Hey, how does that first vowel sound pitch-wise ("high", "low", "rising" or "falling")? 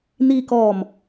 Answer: low